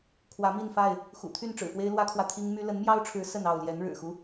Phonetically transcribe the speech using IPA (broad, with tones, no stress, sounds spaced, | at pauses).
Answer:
kʰ w ä˨˦ m i˥˨ n f a˥˨ ɪ̯ | x ṵ˨˩ t̪ʰ y˥˨ n ʈ͡ʂ ɻ̩˨˩ f w e˦ ɪ̯ l w ä˦ kʰ w ä˨ t̪ʰ i˦ ŋ m y˦ l ə˨˦ n m j ɑ˦ ʊ̯ ʈ͡ʂʰ ɻ̩˨˦ s ə˥˨ n ɑ˥˨ ʊ̯ l j ɛ˨˦ n ɻ ɻ̩˨˩ x u˦